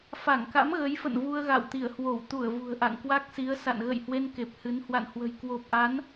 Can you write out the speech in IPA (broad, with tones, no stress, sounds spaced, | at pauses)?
f a˧˩ ŋ k a̰˧˥ m ɣ ə˨˦ j f ə̰˧˨ n v u˧ ə̯ ɣ a̰˧˨ w t̪ i˧˩ ə̯ h w o˧˩ w t̪ u˧˩ ə̯ v ṳ˨˩ ə̯ ʔ a̰˧˨ ŋ k w a˦˥ k̚ s i˨˦ ə̯ s a̰˧˨ n ɣ ə̰˧˨ j h w e˧ n k e˨˩ p̚ h ɨ˨˦ n h w a̰˧˨ n h w ə̤˨˩ j k w o˨˩ p̚ ʔ a˨˦ n